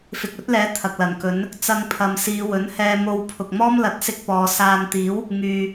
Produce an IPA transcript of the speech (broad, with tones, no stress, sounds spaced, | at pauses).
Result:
f ɪ˨ k̚ ɵ˨˥ t̚ l ɛː˨˥ t̪ʰ ɐ˨ k̚ l ɐ˨˩ n k ɵ˨˥ n | t͡s ɐ˧ ŋ pʰ ɐ˨ m s iː˨˧ w ɵ˨˥ n h ɛː˧ m o˧ w pʰ ʊ˨ k̚ m ɔː˥ m l ɐ˨˥ t̚ s ɪ˧ k̚ p ɔː˨˧ s aː˧ n t̪ iː˨˥ w | ŋ yː˨